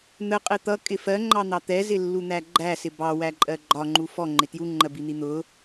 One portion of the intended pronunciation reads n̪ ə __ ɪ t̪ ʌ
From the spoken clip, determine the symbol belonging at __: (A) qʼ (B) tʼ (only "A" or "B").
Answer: A